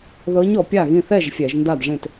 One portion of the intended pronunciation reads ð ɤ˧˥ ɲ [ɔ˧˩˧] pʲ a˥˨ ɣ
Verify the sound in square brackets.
correct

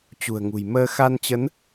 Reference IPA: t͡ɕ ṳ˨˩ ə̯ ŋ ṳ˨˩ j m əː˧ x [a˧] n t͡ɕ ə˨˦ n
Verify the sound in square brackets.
correct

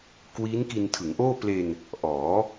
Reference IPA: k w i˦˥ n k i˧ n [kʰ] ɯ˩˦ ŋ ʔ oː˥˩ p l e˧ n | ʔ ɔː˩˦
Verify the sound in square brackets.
incorrect: tʰ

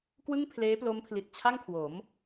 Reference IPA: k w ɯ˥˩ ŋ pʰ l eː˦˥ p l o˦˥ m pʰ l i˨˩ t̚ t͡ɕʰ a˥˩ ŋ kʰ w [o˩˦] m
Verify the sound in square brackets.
correct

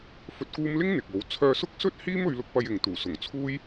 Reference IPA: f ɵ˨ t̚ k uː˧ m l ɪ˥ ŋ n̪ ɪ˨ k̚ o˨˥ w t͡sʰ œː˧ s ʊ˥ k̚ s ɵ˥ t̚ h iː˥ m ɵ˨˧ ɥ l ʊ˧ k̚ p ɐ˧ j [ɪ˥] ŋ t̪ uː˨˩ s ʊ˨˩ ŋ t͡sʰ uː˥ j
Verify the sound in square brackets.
incorrect: ɪ˨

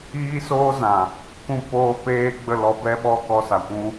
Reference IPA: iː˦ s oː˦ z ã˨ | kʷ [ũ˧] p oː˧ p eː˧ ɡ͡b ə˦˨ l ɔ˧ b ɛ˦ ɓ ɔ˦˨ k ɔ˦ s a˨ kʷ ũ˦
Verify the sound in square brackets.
correct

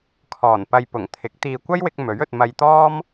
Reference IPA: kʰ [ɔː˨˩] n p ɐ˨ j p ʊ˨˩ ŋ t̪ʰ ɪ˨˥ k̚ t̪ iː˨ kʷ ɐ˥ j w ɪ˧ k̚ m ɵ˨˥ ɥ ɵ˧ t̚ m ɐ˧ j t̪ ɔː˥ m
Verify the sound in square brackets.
correct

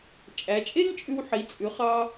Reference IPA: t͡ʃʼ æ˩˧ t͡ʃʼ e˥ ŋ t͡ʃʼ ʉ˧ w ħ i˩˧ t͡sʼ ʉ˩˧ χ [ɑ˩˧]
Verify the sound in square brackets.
incorrect: ɑ˧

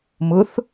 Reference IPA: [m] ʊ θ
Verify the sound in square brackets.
correct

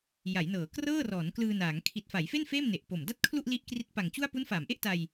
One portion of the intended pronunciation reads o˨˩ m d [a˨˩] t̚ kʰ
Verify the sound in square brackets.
incorrect: a˥˩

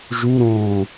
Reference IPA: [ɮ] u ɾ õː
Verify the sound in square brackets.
incorrect: ʒ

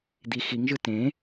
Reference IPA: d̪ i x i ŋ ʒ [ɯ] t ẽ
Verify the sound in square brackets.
correct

